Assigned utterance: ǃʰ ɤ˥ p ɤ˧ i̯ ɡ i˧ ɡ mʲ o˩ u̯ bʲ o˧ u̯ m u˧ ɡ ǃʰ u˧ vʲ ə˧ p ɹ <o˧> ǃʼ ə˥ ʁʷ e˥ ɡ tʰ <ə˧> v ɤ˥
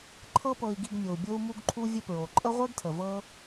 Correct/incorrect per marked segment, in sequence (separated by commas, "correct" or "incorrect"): incorrect, incorrect